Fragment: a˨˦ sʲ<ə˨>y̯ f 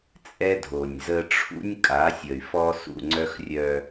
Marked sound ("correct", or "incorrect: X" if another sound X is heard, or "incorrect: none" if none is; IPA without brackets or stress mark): correct